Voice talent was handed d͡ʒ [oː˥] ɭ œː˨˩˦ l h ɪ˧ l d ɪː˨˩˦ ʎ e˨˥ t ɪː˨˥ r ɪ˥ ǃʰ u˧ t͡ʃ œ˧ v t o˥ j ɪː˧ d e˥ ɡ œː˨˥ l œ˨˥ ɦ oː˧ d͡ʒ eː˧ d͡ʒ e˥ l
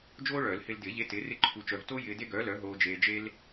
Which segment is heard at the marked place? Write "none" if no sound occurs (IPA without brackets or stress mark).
oː˥